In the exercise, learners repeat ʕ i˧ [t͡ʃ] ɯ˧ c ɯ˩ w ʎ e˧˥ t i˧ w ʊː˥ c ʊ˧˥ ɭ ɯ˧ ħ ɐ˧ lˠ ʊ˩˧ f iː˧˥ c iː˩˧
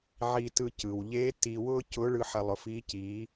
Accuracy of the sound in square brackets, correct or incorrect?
incorrect